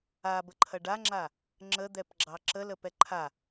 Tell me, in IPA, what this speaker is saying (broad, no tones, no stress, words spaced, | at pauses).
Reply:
abəǃʰɐ ɖaŋ͡ǁa | ŋ͡ǁəd̪ɛpɡ͡ǁɑ ǁələpɛ ǃʰa